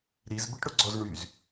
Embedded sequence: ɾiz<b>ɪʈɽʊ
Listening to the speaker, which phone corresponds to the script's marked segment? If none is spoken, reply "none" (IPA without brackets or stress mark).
b